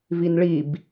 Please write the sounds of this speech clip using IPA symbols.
v i n ɭ i b

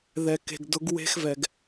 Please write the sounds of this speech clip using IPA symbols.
ð ɛ˨ k e̤˨ ɡ d ʊ˨˦ ɡ w e̤˦ x v ɛ˨ ɡ

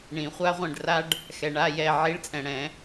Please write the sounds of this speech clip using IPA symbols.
ɳ ĩ˨˩˦ χʷ a˥ ʁʷ ɛ̃˦˨ ɖ r a˥ ɖ | x ɛ˨ ɳ a˧˥˧ j ɛ˦˨ ʕ i˧˥˧ ɭ t͡sʼ ɛ̃˨ ɽ ɛ̃˨˩˦

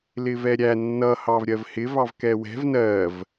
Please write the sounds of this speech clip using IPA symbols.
l ɪ v ɛ ɾʲ æ nː ʌ h ɑ v ɾʲ ɜ v h ɪ v ɑ v k ɛ w ɛ̤ v n ɜ v

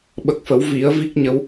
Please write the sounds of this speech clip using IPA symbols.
ɓ ə˨˩ k̚ f ə˨˩˦ w v i˨˩˦ ə̯ v i˦˥ k̚ ɲ ə˧˥ w

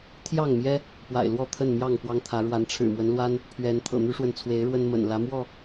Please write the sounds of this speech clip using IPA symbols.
t̪ʰ j ɑ˥˨ ŋ m j ɛ˦ | p w a̰˨˩ ɪ̯ l w ɔ˥˨ t̪ʰ ə˥˨ n m j ɑ˥˨ ŋ p w ɑ˦ ŋ t̪ʰ ä˨˦ ɻ w a˨˦ n ʈ͡ʂʰ ɻ̩˨˩ m w ə˨˦ n l w a˦ n | pʰ ɥ ɛ˨˦ n t̪ʰ ɤ̰˨˩ n̪ y˦ ʂ w ə˨ n t͡sʰ w e˨˦ ɪ̯ ɻ w ə˦ n m ə̰˨˩ n l ä˨˦ m w ɔ˥˨

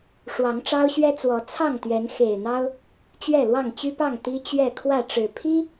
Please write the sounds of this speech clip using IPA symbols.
ʂ w ɑ˨˦ ŋ ʈ͡ʂ ɑ˦ ʊ̯ ɕ ɥ ɛ˦ t͡s w ɔ˨˦ t͡sʰ ɑ˥˨ ŋ t̪ ɥ ɛ˨˦ n x e˨˩ ɪ̯ n̪ ɑ˦ ʊ̯ | t͡ɕ ɥ ɛ˥˨ l w ɑ˥˨ ŋ t͡ɕ y˦ p ɑ˥˨ ŋ t̪ i˦ t͡ɕ ɥ ɛ˥˨ kʰ w ä˥˨ ʈ͡ʂ ɻ̩˨˩ pʰ i˦

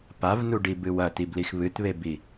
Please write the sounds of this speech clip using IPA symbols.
p a v n u ɖ i b ɨ w ɐ t i b l i x β ɨ t β e b i

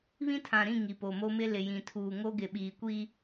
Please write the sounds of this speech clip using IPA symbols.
β ĩ˦ tʰ ã˨ ɾ ĩ˦˨ ŋ i˨ p o˨ m o˦ m ɪ˦ l ɪ˨ j ĩ˨ tʰ uː˨ ŋ o˦ ɡ ɪ˨ ɓ iː˨ kʷ iː˦

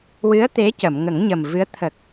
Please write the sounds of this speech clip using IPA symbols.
w ɨ˧˥ ə̯ t̪ e˧˥ c ə˨˩˨ m ŋ ə˨˩˦ ŋ ɲ ə˨˩ m v ɨ˧˥ ə̯ t̪ʰ ə˨˩ k̚

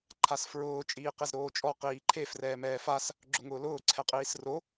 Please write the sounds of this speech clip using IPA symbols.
ǃʰ a s f ɹ ʊː t͡ʃʼ iː q e z ɾ oː t͡ʃʼ ɔ q iː ǃʰ e f r ɛː m ɛː f a s | ɡ͡ǁ ʊ ŋ ʊː l ʊː ǀʰ ɛ qʼ iː s r o

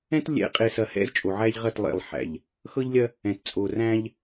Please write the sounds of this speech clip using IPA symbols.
ɛ̃˦ t lʲ ɛ̰˨˦ qʼ e˨ s ɐ˨ h ɛ̰˦ z t͡ʃʼ o˨ ʕ æ˦ ʎ ʁ ɐ˦˨ t lˠ ḛ˨ lˠ ħ æ̰˨ ʎ | x ɤ˦ ʎ lʲ ɐ˦ | ɛ̃˨ t t͡sʼ o˨ r æ̃˦ ʎ

